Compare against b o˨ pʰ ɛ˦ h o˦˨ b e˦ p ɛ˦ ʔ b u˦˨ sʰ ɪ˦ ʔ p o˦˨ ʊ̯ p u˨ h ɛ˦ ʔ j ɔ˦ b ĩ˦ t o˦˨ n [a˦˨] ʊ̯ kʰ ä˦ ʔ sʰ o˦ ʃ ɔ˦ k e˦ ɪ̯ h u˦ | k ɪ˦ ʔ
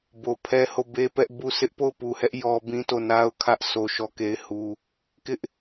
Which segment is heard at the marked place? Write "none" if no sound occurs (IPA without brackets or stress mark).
a˦